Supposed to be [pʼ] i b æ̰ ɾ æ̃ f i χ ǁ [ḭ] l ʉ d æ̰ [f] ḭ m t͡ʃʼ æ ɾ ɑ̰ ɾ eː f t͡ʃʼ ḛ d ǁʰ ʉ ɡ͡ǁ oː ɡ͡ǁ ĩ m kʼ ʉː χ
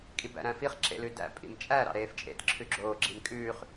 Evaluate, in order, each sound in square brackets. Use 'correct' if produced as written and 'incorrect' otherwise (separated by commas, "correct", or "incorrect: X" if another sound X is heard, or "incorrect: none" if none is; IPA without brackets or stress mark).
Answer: incorrect: kʼ, incorrect: ḛ, incorrect: pʼ